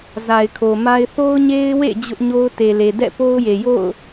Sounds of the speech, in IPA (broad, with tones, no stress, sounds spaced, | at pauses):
z a˨ ɪ̯ kʰ o˨ m a˦ ɪ̯ θ o˦ ʊ̯ ɲ e˦ ɪ̯ w ḛ˦˨ d͡ʑ ʊ˦ ʔ ɲ o˦ ʊ̯ t e˨ l e˨ d ɛ̰˦˨ p o˦ ʊ̯ j e˨ j o̰˦˨ ʊ̯